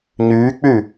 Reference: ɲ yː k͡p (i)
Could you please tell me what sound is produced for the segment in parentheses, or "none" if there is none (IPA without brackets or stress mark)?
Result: y